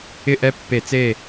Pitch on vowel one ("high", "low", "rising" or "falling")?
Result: falling